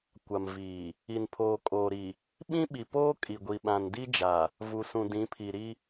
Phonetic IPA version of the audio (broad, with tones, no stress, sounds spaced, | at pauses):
kʷ a˨ m v iː˨ | i˨ n pʰ oː˨ kʼ oː˨ ɾ i˨ | ɓ ĩ˦ ɓ i˨ p oː˦ kʼ i˨ ɡʷ i˨ ɓ ã˨ n d i˦ d͡ʒ a˨ | v u˨ s ũ˨ d ĩ˨˦ pʰ i˨ ɾ i˦